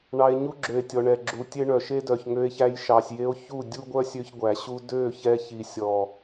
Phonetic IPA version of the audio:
ɳ ɑ˧ e̯ ɲ u˦ ɡ͡ǁ ø˨ e̯ tʲ ɔ˨ ɳ ɛ˨ ɡ͡ǁ u˨ tʲ e˦ ɳ œ˨ ʃ e˦ d œ˨ ç ŋ ø˧ e̯ ç æ˧ j ʃ ɑ˨ sʲ j e˧ o̯ ç u˦˨ dʲ u˦ ɡʷ œ˦ sʲ ø˧ ç ɡʷ æ˨ ɕ u˦ d ø˦˨ ç ɛ˧ ç i˨ sʲ ɔ˨

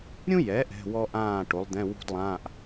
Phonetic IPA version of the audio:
ɾʲ ũ˥ j ɛ˩˥ ʔ ɛ̤˧˥˧ w ɔ˥ ʔ ãː˥˨ ʈ o˩˥ lˠ d̪ ɛ̃˧˥˧ w ṳ˥ d lˠ ãː˧˥˧ ʔ

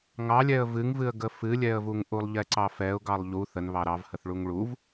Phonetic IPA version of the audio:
ŋ ɑ lʲ ɛ ə̯ v ɨ ŋ v ɨ ə̯ ɡ ə f ɨ lʲ ɛ ə̯ v u ŋ ʔ u lˠ ʎ ɛ ǀ ɑ f ɛ ʊ̯ ɡ ɑ lˠ ʎ u θ ə n β ɑ ɾ ɑ v h ə θ ɭ u ŋ ɭ u v

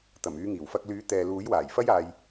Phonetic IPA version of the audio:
t̪ ɐ˨˩ m yː˨˧ ŋ iː˨˩ w f ɐ˧ k̚ l yː˨˥ t̪ ɛː˨ l uː˨˥ j w aː˨˩ j f ɐ˥ j aː˧ j

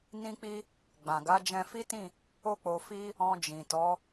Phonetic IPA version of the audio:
n ĩ˦ k͡p i˦ | ɡ͡b ã˨ ɡ a˨˦ d͡ʒ ɛ̃˧ f i˦ t ĩ˦˨ | o˧ k͡p o˨ f i˧ | ɔ̃˧ d͡ʒ ĩ˨ t ɔ˨˦

